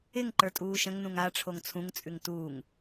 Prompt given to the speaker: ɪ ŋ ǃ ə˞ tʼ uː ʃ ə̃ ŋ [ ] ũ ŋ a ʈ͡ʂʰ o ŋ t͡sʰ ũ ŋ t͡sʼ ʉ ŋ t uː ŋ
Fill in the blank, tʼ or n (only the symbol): n